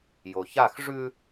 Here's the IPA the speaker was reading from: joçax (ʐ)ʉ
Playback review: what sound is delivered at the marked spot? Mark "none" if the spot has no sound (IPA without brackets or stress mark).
ʐ